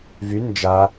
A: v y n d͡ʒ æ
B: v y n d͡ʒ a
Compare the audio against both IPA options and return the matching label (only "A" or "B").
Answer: B